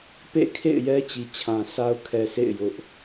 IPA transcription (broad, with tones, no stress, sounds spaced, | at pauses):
p ḛ˦˨ kʰ ḛ˦˨ ɪ̯ j ɛ˦ t͡ɕ i˨ t͡ɕʰ ã˨ sʰ a˦ ʊ̯ kʰ ɛ˨ sʰ ḛ˦˨ ɪ̯ j ʊ˦ ʔ